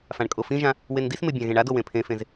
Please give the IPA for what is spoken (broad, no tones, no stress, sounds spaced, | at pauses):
f ã ɳ kʼ o f ĩ ʒ ã | w e n d i s m e bʲ ã ɣ ẽ ɳ a d o w ẽ pʰ ẽ f ẽ z